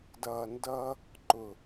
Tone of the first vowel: low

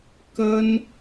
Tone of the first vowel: high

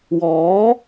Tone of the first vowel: rising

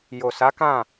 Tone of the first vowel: low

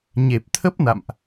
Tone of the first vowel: low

